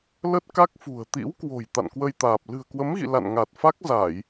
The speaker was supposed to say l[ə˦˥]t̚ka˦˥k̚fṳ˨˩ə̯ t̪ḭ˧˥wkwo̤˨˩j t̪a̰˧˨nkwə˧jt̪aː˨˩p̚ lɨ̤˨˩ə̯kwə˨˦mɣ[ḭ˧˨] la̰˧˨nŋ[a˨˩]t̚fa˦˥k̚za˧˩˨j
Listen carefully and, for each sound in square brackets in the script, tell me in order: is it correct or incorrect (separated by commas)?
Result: correct, correct, correct